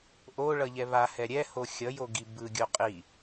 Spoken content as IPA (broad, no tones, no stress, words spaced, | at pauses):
ʔo ɭʌʎɛβahɛ ɾʲɛ hoxʲʌjo ɡibɯɡʲo qʼi